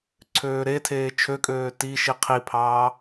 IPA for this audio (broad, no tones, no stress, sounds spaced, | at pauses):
ǀʰ øː ɾ e tʰ eː t͡ʃʰ ø kʼ øː t i ʃ i qʰ i pʰ ɑː